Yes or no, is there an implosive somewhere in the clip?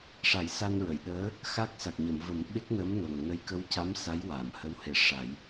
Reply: yes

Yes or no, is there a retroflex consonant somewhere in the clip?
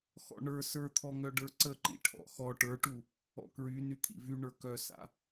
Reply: yes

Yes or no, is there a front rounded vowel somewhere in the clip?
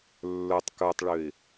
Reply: yes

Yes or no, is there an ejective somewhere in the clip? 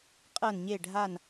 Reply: yes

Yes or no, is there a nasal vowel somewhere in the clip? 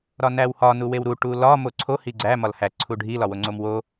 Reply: no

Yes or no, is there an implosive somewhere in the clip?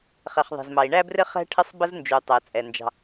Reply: no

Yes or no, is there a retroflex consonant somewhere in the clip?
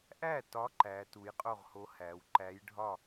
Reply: yes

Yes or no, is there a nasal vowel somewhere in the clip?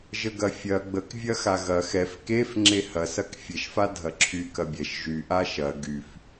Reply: no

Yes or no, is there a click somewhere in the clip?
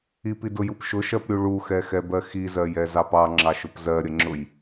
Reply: yes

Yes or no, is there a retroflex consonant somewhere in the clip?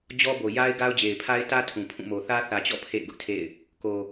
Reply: no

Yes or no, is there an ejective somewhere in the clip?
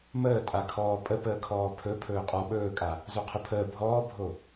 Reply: yes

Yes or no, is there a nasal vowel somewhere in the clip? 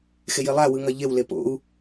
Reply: no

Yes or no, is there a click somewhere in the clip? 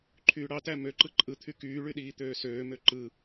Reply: yes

